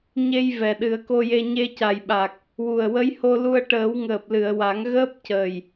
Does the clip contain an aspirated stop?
no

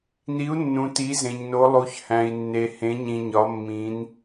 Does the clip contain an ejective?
no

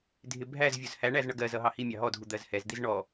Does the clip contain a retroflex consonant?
yes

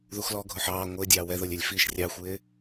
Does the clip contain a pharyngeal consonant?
yes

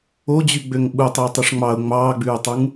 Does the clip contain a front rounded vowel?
yes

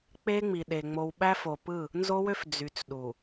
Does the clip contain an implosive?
yes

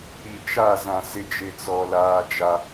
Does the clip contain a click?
no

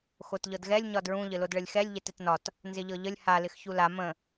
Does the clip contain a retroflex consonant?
yes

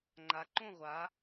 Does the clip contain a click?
yes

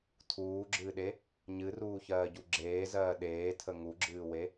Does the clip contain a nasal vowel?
no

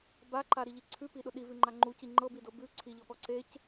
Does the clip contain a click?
yes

